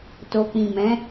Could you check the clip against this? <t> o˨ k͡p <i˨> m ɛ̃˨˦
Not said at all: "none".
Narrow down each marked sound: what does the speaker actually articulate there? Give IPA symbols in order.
t, ĩ˨

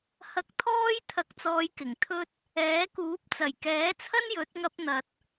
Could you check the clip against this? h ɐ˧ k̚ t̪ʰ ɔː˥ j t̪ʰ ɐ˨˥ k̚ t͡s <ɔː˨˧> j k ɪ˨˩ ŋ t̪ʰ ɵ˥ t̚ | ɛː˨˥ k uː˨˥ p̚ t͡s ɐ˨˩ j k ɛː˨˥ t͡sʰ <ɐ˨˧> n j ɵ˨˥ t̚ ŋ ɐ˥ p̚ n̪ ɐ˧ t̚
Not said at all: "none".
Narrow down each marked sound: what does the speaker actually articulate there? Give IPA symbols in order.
ɔː˨˧, ɐ˥

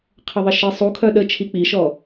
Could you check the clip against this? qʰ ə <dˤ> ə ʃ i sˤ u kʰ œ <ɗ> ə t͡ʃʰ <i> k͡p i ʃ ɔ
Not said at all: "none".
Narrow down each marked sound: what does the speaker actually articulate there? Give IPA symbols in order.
ðˤ, ɗ, i

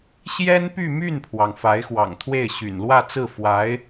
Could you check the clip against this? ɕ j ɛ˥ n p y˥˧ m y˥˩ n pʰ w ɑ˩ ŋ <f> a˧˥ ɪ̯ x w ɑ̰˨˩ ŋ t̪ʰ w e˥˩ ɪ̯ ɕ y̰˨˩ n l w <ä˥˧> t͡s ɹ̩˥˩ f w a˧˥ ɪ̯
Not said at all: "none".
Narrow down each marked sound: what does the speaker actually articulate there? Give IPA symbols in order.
f, ä˥˧

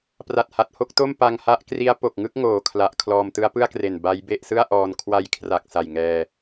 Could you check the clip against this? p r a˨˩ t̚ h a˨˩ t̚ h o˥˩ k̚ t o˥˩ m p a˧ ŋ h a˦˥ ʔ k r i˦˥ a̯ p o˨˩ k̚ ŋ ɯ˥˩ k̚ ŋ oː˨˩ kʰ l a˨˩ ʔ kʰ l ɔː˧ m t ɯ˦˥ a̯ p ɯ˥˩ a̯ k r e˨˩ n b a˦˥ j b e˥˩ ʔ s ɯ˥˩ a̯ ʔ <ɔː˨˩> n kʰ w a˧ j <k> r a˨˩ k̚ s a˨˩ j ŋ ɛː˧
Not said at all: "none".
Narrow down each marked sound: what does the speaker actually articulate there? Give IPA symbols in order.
ɔː˧, kʰ

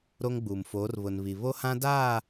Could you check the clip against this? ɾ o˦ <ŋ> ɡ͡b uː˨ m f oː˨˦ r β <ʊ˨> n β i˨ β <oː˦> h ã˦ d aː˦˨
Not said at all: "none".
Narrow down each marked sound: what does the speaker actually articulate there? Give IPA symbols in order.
ŋ, ʊ˨, o˦

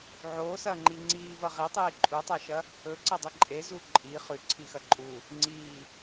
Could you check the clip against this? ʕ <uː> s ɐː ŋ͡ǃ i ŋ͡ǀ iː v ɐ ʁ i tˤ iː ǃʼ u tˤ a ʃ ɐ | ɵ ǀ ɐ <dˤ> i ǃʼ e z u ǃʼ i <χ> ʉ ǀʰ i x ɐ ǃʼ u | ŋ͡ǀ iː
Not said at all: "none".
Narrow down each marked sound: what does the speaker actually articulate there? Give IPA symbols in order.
oː, dˤ, χ

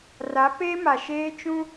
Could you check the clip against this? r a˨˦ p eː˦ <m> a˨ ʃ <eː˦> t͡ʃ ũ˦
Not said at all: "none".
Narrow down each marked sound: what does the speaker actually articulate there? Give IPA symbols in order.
m, eː˦

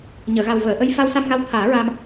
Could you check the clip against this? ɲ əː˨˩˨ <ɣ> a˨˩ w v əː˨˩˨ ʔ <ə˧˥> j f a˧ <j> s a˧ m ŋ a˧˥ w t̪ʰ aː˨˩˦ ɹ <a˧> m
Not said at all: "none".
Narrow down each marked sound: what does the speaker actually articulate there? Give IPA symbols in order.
ɣ, ə˧˥, w, a˧

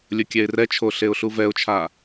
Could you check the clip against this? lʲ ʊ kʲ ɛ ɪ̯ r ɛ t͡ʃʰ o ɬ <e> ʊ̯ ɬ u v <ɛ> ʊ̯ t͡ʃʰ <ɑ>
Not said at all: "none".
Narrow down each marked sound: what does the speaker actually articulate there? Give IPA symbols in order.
e, ɛ, a

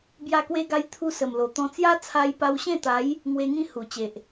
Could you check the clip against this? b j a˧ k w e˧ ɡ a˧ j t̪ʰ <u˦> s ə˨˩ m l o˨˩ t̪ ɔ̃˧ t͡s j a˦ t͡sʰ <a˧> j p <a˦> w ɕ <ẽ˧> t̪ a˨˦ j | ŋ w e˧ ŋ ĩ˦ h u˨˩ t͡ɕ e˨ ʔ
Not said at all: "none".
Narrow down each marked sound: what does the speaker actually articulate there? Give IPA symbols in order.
u˧, a˧, a˧, ẽ˥˧

